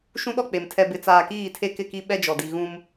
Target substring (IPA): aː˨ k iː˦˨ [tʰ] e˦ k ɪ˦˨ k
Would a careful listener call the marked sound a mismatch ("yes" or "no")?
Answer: no